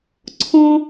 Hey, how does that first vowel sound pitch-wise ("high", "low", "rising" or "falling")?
high